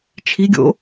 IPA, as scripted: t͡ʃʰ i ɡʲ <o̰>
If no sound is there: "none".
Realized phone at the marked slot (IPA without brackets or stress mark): o̰